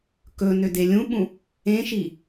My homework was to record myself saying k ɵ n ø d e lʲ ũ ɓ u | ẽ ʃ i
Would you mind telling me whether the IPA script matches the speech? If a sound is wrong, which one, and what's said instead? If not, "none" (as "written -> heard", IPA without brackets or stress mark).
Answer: u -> ũ